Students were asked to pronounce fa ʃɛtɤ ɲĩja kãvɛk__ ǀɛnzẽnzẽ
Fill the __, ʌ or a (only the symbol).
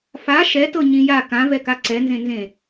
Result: a